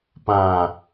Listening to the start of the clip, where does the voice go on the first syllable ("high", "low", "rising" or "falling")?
low